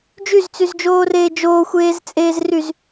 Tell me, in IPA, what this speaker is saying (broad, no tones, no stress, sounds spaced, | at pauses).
d͡ʒ y z t͡s y z d͡ʒ oː r eː d͡ʒ oː xʷ eː z t͡sʼ eː z r y z